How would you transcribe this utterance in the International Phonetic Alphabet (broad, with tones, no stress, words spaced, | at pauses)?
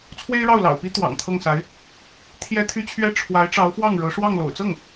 t͡sʰwe˥ɪ̯ɻɑ˥˩ʊ̯lɑ̰˨˩ʊ̯pi˥ t̪wɑ̰˨˩ŋt̪ʰɤ˥˩ŋsa˧˥ɪ̯ | t̪ʰjɛ˥t̪ʰy˥t͡ɕʰɥɛ˥ ʈ͡ʂʰwa˧˥ɪ̯ʈ͡ʂɑ˧˥ʊ̯fwɑ˥˩ŋ ɻɤ˧˥ʂwɑ˥˩ŋ lo̰˨˩ʊ̯t͡sɤ˥˩ŋ